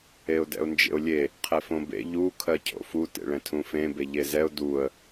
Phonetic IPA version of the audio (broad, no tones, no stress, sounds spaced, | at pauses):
e ʊ̯ d ɛ̰ ʊ̯ n d͡ʒ ḛ ʊ̯ lʲ e | qʰ ɛ f õ b ḛ ʎ u kʰ ɜ cʰ o̰ f u t ḛ ɭ ɛ̃ tʰ ũ f ẽ b e ʎ e z ɛ ʊ̯ d u ə̯